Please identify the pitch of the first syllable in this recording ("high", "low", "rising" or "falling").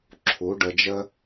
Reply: rising